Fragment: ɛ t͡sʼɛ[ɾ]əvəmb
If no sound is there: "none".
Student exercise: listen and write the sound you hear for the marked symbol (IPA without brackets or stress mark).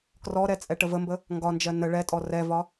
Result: ʈ